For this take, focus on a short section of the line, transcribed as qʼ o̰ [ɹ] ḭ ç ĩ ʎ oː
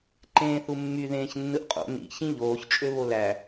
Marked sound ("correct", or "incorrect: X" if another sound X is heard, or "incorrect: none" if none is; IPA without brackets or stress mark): incorrect: n